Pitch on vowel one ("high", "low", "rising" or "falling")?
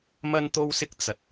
high